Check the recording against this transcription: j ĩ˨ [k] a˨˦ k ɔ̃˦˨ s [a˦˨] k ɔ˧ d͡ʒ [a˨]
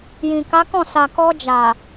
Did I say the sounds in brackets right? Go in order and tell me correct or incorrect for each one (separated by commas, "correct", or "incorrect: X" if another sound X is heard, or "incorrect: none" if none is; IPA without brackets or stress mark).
correct, incorrect: a˨, correct